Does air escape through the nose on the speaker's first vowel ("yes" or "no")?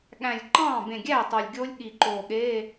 yes